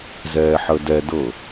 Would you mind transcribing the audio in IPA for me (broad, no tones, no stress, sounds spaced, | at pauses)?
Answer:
z ɛː ħ ə d ɛ d ɤ